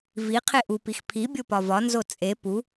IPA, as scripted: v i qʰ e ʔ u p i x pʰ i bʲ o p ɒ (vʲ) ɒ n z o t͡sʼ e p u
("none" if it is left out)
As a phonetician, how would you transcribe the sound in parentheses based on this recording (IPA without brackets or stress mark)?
v